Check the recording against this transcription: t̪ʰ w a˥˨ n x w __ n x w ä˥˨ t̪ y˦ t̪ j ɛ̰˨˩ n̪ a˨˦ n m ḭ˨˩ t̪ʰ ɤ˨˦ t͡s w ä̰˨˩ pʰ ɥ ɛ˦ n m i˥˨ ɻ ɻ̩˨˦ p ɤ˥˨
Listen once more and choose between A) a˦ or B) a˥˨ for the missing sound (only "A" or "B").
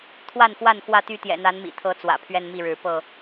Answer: B